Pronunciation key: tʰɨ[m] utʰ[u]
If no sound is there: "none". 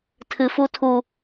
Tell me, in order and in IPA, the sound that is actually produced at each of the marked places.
f, u

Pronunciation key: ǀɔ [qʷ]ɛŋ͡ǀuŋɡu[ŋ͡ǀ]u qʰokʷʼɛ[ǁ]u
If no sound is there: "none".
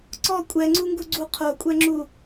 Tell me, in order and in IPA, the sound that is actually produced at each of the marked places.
kʷʼ, ɡ͡ǀ, ŋ͡ǁ

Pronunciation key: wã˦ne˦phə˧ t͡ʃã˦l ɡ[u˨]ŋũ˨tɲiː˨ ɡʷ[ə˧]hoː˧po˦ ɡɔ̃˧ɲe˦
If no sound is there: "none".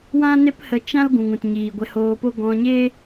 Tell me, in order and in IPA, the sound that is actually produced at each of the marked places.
ũ˨, ɛ˧

